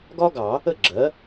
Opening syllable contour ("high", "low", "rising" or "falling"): high